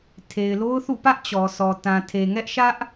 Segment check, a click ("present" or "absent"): absent